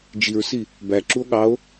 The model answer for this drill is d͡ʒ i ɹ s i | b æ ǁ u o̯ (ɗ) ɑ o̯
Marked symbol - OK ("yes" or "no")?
no